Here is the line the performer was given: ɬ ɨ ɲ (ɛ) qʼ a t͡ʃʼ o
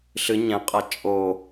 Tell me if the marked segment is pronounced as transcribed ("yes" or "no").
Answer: no